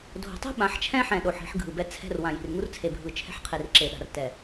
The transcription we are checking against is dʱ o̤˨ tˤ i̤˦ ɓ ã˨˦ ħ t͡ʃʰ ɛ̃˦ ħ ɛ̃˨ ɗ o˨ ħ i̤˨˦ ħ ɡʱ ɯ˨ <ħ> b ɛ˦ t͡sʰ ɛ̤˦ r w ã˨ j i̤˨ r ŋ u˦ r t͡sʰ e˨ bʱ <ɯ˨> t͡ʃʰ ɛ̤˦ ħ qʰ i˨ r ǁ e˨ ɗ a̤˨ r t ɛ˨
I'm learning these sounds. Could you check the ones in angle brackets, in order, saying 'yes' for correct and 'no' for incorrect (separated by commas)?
no, yes